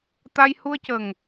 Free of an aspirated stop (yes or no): yes